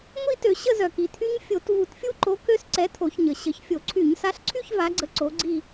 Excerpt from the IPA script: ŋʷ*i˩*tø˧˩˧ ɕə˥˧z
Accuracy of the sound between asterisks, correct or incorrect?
incorrect